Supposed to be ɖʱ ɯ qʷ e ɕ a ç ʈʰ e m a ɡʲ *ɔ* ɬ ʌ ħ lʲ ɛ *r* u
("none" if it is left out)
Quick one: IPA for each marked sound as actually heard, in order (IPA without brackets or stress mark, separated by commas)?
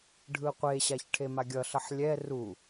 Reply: ʌ, r